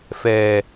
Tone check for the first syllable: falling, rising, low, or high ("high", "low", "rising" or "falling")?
low